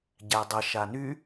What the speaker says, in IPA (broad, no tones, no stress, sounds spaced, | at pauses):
ɟ æ dˤ ə ʃ a n y